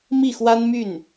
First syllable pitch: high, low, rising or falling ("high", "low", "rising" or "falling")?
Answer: falling